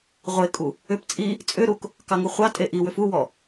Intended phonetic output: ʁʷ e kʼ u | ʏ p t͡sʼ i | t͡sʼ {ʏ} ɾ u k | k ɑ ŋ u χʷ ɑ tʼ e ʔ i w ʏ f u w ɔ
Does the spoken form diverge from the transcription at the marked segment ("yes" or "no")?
no